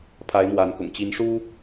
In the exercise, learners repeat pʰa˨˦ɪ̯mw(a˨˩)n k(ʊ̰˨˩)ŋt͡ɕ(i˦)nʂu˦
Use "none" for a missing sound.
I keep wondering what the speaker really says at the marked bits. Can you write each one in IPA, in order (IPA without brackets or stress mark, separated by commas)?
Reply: a˨˦, ʊ̰˨˩, i˨˦